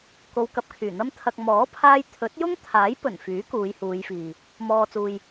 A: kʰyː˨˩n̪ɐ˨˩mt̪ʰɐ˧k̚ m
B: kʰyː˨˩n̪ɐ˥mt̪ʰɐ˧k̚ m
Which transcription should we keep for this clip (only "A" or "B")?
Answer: B